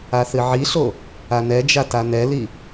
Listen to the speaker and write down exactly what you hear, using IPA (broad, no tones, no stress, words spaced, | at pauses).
aθɨʕiɬo | anɛd͡ʒa tanɛli